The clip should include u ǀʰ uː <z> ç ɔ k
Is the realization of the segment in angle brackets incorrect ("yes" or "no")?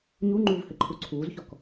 no